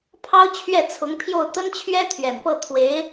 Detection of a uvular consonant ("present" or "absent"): absent